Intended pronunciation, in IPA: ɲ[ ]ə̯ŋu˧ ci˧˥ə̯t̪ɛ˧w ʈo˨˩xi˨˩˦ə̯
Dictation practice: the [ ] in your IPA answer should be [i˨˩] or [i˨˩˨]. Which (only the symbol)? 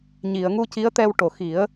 i˨˩˨